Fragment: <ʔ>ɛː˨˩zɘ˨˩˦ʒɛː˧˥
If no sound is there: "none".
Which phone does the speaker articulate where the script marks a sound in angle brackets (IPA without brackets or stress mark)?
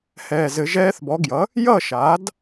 h